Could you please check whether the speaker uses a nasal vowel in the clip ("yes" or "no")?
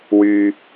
no